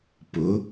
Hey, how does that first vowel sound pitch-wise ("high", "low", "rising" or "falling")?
rising